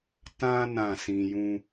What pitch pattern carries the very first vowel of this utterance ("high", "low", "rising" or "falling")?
high